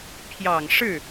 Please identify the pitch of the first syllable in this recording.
low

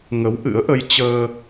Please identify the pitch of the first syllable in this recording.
rising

